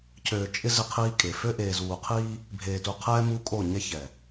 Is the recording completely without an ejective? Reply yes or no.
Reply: no